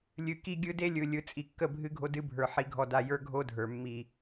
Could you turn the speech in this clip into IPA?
lʲɨ˨ki˦ɡʲɯ˦ de˦lʲɯ˨ lʲɯ˨t͡sʼi˨kːə˦˨ bʱɨ˦ɡʱo˦dɨ˦bʱə˞˨ ħi˨ɡʱɔ˨da˨ jə˞˦ɡʱo˦dʱə˞˨ mːi˨

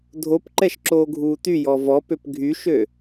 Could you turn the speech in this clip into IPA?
dʱopǃɛʃ ǁoːɡʱuːtyjɔ vɔ pøpɡʱyʃø

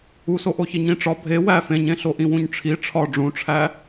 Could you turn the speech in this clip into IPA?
usoʔoçi ɲĩʈ͡ʂɒ bʱe wæ fẽɲẽɬo ʔĩwũɲʈ͡ʂʰi ʈ͡ʂʰɒ ɖ͡ʐũʈ͡ʂʰæ

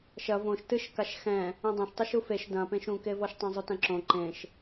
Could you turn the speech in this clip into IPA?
ʃɐ võʃ tɨʃkaʃ xɛ̃ | ĩdˤɐ̃ʃ tˤɨʃufeʃ dɐ̃pẽʃ ũkevɔʃtˤɛ̃ zˤutɐ̃ǁõ ǃẽʃ

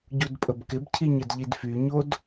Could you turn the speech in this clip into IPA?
ɟudpʼəbkɪbcʰiɲ ədʎidfyɲod

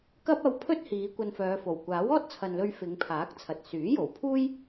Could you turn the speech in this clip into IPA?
kɐ˥p̚ɐ˧wpʰɵ˥t̚ hiː˨˧kʷɐ˧nfœː˨˧fo˨˩w kʷaː˨˥wɔː˥t̚t͡sʰɐ˨nlɵ˧ɥ fɪ˨˧ŋpʰaː˨˥k̚t͡sʰɐ˨t̚ syː˨˥jo˨˩wpʰuː˥j

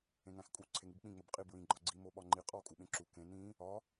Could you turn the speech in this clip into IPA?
ẽŋæ̃xkʼu ǀʰeŋibk͡pĩ ŋ͡mobqʼi bɹĩ ɡ͡ǃɒɡ͡ǀi moɓɒŋ͡ǃi qʼɒ kʼuɓẽǁu kẽ nĩ | ɒ

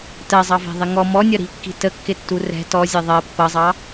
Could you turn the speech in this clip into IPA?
tɜzˤɑvæ̤ðˤɪ ŋɔ mɔnʲʌ ɾi̤kːi̤ təkːɪtːu rɛ̤ tɔzʲɛ ðˤɜ pːʌzˤɑ

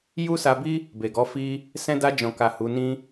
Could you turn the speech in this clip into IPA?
ju˦sa˧bi˦ | be˨ɡɔ˨˦ fi˦ | sɛ̃˧da˧d͡ʒɔ̃˨ka˨ hu˨˦nĩ˦

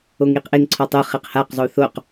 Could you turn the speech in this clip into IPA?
oŋiqʔɪŋǀʰɔ tˤʊ χeqhaqzˤu θoq

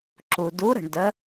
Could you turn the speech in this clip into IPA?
ǁu˩du˨˥ɾə̤˩ɳ də˨˥

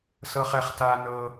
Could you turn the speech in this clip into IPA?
sɤ˦χɛ˧χta˦ nɤ˦

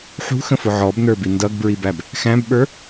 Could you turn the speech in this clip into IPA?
ħṳxə̃fʊ ʕɔbnə˞bi ndʌɡbɹibæb | xæ̃bɓə˞

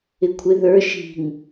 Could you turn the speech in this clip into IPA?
ɪkʷʰɪ ðə˞ ʃi̤ŋ

